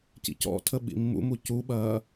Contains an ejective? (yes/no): no